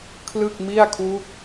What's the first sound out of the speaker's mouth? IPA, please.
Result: kʰ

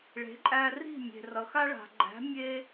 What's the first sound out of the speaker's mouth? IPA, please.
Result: ɭ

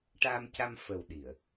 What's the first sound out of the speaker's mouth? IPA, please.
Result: ʈ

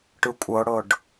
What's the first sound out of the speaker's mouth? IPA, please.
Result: ʈ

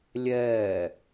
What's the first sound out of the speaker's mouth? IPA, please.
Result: lʲ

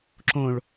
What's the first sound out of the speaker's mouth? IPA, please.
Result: ǁ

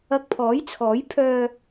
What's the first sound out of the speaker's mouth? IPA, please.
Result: ɐ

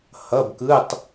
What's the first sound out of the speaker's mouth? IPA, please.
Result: h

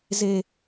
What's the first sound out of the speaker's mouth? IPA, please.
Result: z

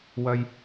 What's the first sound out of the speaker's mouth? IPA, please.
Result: w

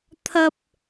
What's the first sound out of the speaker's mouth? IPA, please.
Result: t̪ʰ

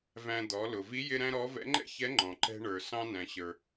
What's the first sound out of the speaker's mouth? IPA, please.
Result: v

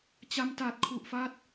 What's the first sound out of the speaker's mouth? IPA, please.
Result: t͡ɕ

